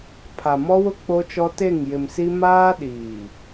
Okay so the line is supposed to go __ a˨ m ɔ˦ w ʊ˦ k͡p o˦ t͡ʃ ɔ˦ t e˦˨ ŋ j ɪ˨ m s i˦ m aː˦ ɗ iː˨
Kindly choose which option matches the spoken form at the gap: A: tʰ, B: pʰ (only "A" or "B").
B